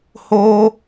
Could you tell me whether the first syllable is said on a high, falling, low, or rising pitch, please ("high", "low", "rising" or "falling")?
high